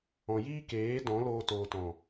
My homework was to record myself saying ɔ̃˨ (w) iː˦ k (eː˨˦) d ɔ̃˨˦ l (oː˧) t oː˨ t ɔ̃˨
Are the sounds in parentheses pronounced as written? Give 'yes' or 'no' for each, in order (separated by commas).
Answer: no, yes, yes